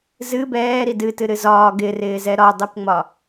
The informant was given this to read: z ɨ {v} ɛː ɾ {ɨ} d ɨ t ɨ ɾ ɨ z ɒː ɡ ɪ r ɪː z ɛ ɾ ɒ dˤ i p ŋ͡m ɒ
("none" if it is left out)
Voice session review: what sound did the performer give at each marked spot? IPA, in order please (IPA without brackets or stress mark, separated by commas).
b, i